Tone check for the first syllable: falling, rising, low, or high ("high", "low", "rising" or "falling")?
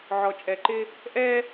low